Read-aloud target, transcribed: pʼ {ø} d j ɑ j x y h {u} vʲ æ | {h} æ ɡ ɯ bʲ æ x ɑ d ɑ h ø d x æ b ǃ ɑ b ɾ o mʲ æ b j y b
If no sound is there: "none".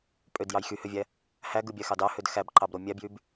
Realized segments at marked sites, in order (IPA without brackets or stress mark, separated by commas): ø, ø, h